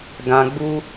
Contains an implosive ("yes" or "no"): no